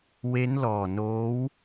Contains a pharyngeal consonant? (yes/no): no